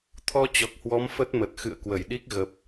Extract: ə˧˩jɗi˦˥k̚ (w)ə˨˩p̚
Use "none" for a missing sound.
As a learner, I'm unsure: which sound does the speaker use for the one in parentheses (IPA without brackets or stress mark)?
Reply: ɣ